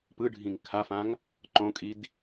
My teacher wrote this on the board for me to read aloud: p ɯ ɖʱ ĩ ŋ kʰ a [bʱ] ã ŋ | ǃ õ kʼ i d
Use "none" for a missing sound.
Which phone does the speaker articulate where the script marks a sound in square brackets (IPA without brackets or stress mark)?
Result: f